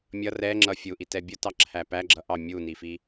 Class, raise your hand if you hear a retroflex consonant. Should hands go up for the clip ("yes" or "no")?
no